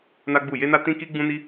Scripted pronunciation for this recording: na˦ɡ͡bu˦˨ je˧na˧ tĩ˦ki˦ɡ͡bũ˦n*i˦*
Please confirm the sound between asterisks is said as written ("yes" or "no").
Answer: yes